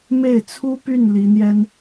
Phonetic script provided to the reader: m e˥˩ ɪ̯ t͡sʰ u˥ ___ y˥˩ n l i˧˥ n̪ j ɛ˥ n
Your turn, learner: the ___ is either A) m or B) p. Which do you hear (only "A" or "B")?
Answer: B